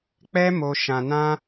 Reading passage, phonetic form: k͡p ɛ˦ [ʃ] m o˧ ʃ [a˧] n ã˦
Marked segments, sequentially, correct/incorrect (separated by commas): incorrect, incorrect